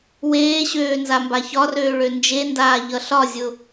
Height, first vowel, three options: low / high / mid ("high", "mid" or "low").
mid